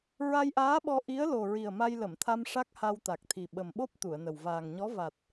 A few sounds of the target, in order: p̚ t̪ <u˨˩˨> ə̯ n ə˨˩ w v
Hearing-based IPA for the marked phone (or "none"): u˨˩˨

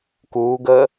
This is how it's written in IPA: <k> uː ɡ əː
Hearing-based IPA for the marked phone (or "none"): k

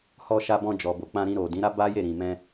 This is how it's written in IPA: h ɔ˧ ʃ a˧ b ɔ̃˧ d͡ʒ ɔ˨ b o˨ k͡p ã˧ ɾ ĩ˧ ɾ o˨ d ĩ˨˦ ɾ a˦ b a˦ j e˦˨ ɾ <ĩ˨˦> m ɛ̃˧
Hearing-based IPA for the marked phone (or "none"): ĩ˨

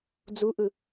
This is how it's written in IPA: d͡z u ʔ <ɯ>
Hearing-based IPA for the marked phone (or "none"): ɯ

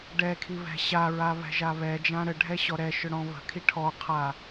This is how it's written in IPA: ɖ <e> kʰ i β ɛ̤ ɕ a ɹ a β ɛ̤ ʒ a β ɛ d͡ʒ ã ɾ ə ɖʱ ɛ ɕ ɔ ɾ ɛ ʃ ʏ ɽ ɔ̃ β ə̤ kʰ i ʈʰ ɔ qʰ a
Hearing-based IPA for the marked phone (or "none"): ɛ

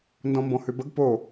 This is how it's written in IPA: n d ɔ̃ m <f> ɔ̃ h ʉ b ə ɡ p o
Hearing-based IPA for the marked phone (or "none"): b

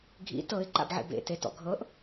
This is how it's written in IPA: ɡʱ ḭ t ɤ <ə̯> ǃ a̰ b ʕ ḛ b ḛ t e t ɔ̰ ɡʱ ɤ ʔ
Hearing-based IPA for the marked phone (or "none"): ɪ̯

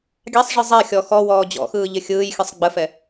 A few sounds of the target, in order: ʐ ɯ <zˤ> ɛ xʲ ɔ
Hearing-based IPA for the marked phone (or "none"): zˤ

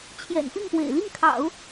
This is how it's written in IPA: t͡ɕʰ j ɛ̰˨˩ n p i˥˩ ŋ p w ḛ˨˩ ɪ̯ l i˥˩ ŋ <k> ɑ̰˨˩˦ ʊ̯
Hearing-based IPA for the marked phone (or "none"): kʰ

